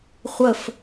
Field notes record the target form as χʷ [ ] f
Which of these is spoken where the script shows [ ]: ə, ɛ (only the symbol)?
ə